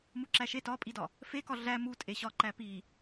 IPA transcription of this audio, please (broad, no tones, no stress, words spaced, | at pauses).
muǁæʃe tɒpʼidɒ | fekɒ ɮæ mutʼeɕɒ ǃæpi